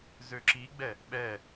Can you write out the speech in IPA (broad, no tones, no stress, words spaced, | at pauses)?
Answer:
zøǁiɡ͡bɛ | ɓɛ